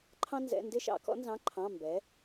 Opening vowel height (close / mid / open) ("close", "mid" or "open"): open